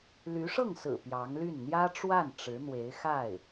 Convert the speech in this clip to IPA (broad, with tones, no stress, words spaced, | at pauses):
ly˧˥ʂɤ˥˩ŋsɹ̩˨˩ pjɑ˧˥ŋly˥˩n n̪jä˥ʈ͡ʂwa˥˩n ʈ͡ʂɻ̩˧˥n̪we˧˥ɪ̯xa˥˩ɪ̯